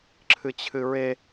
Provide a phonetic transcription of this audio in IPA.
ǁʰ ɨ t͡ɕʰ ɨ ɹ e

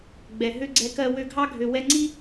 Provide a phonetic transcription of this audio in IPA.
ɡ͡b ɛ˨ ɦ ø˦ ɡ͡ǀ ɛ˧ k ɜ˧ w ø˧ ɡʱ ɑ˦ ɡʱ ø˨ w ɛ˧ ŋ͡ǀ i˦

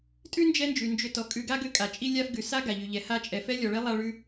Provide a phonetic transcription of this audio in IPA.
tʼ ʉ˥ n d͡ʒ ɛ˦ n d͡ʒ ʉ˩ n d͡ʒ ʏ˨ t ɔ˩ kʼ ʉ˨ ɡ a˦ ɡ ʏ˦ kʼ a˩ t͡ʃʼ i˦ lʲ a˦ f ɡ ʉ˩ s a˥ ɡ a˩ ʎ ʉ˩ ʎ ɛ˨ h a˦ t͡ʃʼ ɛ˨ f ɛ˥ lʲ ɔ˨ ɭ ɛ˥ lˠ a˦ ɭ ʉ˦

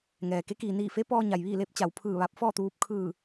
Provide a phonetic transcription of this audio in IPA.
ŋ ɛː˩ k e˧˥ k iː˩ n iː˧˩ f e˧˥ p ɔː˧ ɲ a˩ j ʋ iː˥˨ l eː˧˥ p̚ t͡ɕ a˩ w pʰ ɯː˧˩ ʋ a˧ p̚ f ɔː˥˨ t̪ uː˧ p̚ kʰ ɯː˧˩

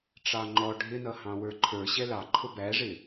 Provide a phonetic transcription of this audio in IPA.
ʈ͡ʂ ɑ ŋ͡ǃ ɔ ɖʱ ɪ n ʌ h ɑ̃ w ə˞ ǃʰ ə˞ ɕ ɛ l ɑ ǃʰ ʊ b æ ʐ ɪ

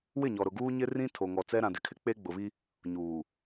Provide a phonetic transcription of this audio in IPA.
w ɪ˦˨ ɲ ɔ˨ ɾ ʊ˨ ɡ uː˦ ɲ ɪ˦ r ĩ˦ tʰ o˨ ŋ ɔ˨ t͡s ɛ˦ ɾ ã˨ d ɪ˨ kʰ ɪ˦ k͡p e˦ ɡ͡b ʊ˨ β i˦ | ɲ uː˨

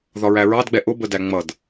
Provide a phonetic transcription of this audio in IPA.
ð ɒ ɹ æ ɹ ɑ d ɡ͡b ɛ ʔ ʊ b ə d æ ŋ͡m ʌ d

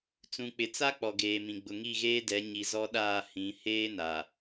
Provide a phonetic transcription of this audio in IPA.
t͡s ũ˨ k͡p ɪ˨ t͡s a˦ k͡p ɔ˨ ɡ eː˨ m ĩ˨ ɡ͡b ʊ˨ ŋ i˦˨ ɣ eː˦ d ɛ˨˦ ɲ i˨ z ɔ˦ ɗ aː˦˨ h ĩ˨˦ h eː˦ n aː˨

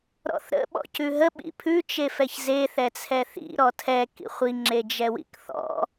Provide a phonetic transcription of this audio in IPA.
ɾ ɔ̰ θ ɾ ə̰ ɓ ɔ̰ c ʉ ɦ ə ɓ ḭ pʰ ʉ t͡ʃ e f ɛ ç z e θ ɛ t͡sʰ ɛ θ ḭ ɾ ɔ tʰ ɛ k ḭ χʷ i ŋ͡ǁ e d͡ʒ ɛ w ḭ k θ ɔ̰

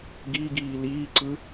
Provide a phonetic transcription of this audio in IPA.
ɡ i ɡ iː l iː ǀ ɯ

